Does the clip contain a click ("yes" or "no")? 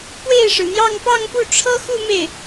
no